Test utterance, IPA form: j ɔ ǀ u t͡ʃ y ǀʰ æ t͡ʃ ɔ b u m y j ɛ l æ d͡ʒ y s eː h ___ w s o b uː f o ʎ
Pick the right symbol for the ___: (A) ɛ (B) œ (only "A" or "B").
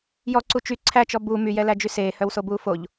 B